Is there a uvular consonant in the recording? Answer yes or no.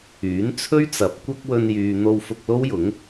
no